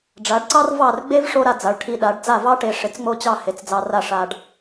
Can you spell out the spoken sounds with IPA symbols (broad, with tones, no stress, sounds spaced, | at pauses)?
ɖ͡ʐ a˩˥ ɖ ǀ ɑ˥ r v ɑ˥˩ r ɡ͡b e˥ v ʂ o˥ ɾ a˧ d͡z a˩˥ ɭ ʈʰ i˧ ɗ a˩˥ ɖ d͡z a˥˩ v ɑ˥ ʈ e˧ ʂ ɪ˩˥ t͡s ŋ͡m o˥˩ t͡ɕ ɑ˥˩ h e˩˥ t͡s d͡z ɑ˧ r a˥˩ ʂ a˧ ɖ